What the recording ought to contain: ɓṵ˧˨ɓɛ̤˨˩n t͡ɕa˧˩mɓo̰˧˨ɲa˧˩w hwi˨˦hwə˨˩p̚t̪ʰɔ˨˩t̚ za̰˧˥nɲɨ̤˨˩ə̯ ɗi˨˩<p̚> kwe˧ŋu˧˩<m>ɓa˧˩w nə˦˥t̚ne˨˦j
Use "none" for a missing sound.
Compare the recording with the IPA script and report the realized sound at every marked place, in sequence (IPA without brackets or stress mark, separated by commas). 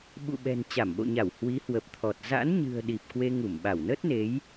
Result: p̚, m